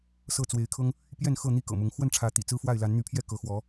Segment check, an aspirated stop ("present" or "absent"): present